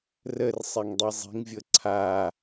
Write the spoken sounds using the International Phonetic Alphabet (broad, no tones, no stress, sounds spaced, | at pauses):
r ə r sˤ e ŋ dˤ i zˤ i̤ ŋ vʲ ɤ ǀʰ a